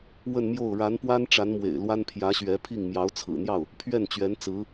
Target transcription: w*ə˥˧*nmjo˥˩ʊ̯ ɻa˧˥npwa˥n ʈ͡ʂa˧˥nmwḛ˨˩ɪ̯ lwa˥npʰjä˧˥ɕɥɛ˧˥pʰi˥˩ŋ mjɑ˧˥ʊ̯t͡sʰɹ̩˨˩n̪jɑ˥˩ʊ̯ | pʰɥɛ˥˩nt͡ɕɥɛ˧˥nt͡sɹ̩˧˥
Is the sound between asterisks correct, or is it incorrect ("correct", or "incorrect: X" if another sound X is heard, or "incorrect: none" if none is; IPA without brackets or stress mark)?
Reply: correct